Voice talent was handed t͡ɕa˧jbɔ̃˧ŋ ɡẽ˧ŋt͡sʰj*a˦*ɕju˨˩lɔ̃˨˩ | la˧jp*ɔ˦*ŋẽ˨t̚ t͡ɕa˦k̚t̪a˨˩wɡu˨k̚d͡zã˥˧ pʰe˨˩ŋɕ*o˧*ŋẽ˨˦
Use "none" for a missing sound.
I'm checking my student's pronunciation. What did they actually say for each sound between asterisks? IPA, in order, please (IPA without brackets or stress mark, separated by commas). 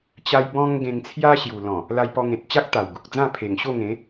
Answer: a˦, ɔ˧, o˥˧